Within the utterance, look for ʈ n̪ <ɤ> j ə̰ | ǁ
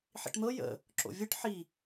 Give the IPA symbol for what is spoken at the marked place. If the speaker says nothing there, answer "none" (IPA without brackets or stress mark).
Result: ɤ